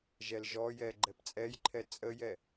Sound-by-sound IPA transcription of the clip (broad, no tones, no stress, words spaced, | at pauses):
ʒɛlʒɔjɛ ɡ͡ǃɛpt͡sʼɛjǃʰɛ t͡sʼəjɛ